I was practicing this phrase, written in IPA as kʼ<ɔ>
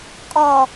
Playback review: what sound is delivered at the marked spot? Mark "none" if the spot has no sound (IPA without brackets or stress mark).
ɔ